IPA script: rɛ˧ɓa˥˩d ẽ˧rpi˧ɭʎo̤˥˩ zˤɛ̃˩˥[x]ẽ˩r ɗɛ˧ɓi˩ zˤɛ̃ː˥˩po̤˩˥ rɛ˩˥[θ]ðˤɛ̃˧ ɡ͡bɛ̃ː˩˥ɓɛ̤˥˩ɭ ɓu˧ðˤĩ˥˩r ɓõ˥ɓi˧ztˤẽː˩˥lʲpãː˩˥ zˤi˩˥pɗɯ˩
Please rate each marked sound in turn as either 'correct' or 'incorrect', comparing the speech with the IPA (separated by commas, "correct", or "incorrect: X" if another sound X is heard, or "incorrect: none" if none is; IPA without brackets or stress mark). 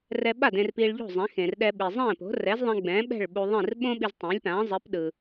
correct, incorrect: z